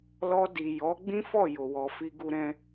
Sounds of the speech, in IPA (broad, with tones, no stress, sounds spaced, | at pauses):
l ɔ˧ d i˨ j ɔ˨˦ ɡ͡b ĩ˦ f ɔ˦˨ j o˨ w ɔ˨ f i˧ ɡ u˧ ɾ ɛ̃˧